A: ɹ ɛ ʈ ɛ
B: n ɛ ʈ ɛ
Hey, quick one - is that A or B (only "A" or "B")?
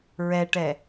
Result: A